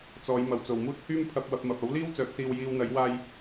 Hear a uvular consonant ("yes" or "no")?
no